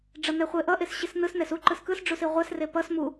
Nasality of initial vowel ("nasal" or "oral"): oral